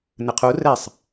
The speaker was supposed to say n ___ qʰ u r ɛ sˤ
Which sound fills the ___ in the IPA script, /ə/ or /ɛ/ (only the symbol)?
ə